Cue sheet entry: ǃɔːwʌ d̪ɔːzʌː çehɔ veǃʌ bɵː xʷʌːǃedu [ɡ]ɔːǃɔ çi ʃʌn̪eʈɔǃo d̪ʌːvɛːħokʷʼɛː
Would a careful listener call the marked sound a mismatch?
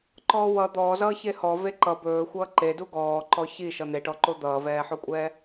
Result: no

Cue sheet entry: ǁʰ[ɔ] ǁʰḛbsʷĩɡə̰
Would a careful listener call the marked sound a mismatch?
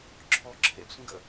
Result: no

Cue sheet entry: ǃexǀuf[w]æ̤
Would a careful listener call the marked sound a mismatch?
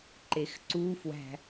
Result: no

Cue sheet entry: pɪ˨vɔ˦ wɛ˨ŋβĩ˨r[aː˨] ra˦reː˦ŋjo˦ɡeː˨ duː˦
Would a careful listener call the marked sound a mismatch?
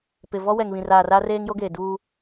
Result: no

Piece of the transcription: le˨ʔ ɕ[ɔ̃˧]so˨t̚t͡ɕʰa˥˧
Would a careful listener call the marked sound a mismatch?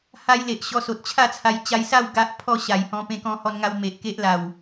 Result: yes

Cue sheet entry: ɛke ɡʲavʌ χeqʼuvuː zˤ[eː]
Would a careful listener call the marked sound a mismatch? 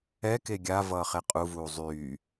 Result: yes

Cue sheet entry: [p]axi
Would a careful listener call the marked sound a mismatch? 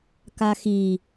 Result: yes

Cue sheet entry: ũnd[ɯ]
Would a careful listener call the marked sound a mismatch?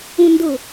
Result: yes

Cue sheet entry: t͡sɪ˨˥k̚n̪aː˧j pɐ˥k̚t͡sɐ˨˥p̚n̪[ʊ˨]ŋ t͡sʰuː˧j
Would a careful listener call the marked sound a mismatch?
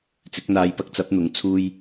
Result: yes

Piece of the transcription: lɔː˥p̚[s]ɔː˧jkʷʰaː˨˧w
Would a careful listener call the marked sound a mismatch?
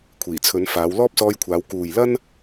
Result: no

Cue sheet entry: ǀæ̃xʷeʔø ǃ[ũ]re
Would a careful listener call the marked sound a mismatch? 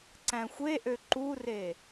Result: yes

